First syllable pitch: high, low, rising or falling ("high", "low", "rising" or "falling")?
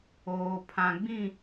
low